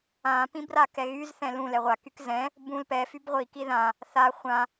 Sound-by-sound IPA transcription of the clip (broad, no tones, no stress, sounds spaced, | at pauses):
ã p ĩ b r a k ɛ ɣ y z θ ɛ̃ l ũ l ɛ ʁʷ a k y k z ɛ̃ | b ũ l p ɛ f y b ʁʷ i k i ð ã | θ a χʷ ã